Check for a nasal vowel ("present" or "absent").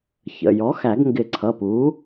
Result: absent